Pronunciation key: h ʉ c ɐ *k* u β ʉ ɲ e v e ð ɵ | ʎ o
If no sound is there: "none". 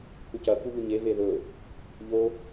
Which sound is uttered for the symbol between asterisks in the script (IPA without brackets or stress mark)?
k